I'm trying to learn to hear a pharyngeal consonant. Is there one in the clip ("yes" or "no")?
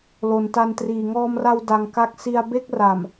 no